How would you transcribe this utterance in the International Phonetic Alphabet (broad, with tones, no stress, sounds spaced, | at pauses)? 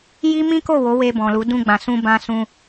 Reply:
j i˦ m ĩ˦ k o˦˨ w o˨˦ w e˧ b ɔ̃˨ l u˨˦ d ũ˧ ɡ͡b ã˨ s ũ˧ b ã˧ s ũ˧